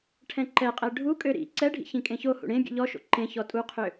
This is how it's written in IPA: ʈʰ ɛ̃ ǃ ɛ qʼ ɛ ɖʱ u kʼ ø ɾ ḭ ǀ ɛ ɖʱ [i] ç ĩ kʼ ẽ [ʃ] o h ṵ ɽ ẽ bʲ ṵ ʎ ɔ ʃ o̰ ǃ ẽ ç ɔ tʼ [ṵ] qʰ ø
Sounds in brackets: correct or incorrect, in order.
incorrect: ḭ, incorrect: ç, incorrect: u

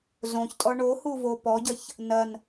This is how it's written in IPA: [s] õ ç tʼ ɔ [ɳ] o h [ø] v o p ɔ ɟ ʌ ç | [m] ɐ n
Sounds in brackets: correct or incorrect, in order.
incorrect: z, correct, incorrect: u, incorrect: n

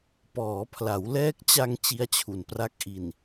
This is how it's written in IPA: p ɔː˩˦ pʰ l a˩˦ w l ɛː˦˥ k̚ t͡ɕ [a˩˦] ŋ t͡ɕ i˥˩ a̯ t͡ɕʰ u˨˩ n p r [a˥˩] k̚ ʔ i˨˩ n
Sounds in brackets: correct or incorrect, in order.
incorrect: a˧, correct

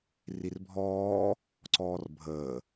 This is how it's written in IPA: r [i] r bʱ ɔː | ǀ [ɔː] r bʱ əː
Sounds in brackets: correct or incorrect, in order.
correct, correct

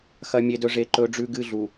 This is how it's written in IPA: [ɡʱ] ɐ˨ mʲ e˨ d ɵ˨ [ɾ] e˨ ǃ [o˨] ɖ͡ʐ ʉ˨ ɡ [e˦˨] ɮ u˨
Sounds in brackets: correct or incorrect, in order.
incorrect: x, incorrect: ʐ, incorrect: ɵ˨, incorrect: ɨ˦˨

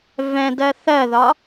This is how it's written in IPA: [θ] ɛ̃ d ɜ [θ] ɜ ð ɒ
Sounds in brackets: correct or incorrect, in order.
incorrect: v, correct

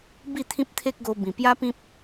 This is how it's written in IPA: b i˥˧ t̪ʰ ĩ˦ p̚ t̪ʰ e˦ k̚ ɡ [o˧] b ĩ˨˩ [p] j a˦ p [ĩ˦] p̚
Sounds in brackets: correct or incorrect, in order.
correct, correct, correct

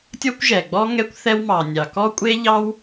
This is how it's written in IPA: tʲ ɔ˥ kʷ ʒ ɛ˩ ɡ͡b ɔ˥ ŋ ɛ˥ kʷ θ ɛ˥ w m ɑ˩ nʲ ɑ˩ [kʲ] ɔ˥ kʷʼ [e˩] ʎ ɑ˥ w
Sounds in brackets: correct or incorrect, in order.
incorrect: k, incorrect: e˥

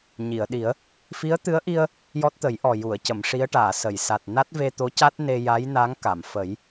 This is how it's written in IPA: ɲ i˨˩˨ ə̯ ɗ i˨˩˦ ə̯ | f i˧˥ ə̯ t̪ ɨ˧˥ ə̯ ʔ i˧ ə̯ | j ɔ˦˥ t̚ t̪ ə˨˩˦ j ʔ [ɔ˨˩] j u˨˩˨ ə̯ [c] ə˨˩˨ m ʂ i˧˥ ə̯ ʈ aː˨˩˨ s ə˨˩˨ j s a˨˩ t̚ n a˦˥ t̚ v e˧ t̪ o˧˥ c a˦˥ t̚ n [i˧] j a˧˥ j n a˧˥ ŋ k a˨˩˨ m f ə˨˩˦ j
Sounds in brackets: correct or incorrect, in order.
correct, correct, incorrect: e˧

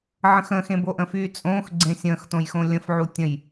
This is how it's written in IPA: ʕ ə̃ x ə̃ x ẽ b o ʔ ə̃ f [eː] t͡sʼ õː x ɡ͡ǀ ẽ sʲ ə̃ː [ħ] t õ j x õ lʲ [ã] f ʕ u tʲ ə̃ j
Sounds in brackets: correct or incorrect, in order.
incorrect: yː, incorrect: x, incorrect: ə̃

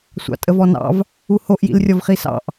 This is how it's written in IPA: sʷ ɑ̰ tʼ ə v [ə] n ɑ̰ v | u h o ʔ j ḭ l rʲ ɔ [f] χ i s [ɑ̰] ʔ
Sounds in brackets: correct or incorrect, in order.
incorrect: ɔ, incorrect: v, correct

